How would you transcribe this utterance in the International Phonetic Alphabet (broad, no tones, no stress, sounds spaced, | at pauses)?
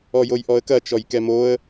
ɔ j o j ʔ ɔ ə̯ k ɐ t͡ʃ ɔ j k ɛ m o ə̯